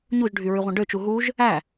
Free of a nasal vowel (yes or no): no